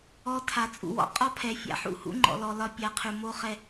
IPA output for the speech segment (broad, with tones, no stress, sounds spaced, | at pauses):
ɔ˨ tʰ a˨ t͡sʼ ṵ˨ w ɔ̰˦ qʼ ɒ˦ pʰ ɛ˨ fʲ a̰˨ ħ ṵ˦˨ h ṵ˦ ŋ͡ǃ ɔ̰˨ l ɔ˨ l ɒ˦ pʲ a˨˦ qʰ ʉ˨ m o˦ χ ɛ˦